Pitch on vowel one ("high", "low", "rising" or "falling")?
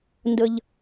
high